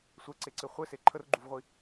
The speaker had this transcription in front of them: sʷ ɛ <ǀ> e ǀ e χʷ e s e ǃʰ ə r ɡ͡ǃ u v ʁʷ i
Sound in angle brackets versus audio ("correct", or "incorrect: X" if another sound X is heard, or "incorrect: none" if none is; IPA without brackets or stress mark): correct